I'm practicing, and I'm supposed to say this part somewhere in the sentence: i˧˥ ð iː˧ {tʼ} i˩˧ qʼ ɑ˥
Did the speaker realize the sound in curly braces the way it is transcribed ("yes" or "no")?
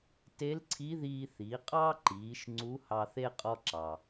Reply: no